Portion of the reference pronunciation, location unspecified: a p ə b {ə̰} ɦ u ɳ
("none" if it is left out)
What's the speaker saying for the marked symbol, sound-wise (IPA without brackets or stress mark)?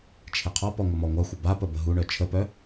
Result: ə